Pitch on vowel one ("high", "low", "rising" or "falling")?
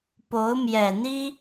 rising